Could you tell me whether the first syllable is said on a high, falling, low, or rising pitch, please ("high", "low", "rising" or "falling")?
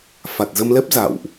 low